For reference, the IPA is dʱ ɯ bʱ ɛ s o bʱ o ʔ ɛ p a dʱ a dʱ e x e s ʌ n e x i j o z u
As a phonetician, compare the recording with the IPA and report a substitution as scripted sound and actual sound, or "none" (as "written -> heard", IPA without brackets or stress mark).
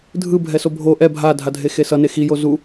p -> bʱ